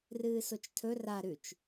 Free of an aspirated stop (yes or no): no